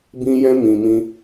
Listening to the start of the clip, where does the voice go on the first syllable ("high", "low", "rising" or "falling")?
high